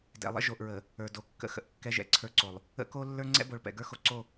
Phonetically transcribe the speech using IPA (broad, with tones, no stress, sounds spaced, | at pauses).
d ɛ̰˨ lˠ ə̰˦ ʒ o˨ ʔ ɹ ə˨ | ə˞˨ d o˨ kː ə̰˦ x ə̰˨ ʔ kː ɛ˦ ʒ ɛ̰˨ ǀʰ ə˞˦ ǀ o˨ lˠ | ə̰˦ k o˦ lː ə˞˦ ŋ͡ǀ ɛ̰˦ b o˨ ɭ p ɛ̰˨ ɡ ə˞˦ x o˦ ǀ o˦˨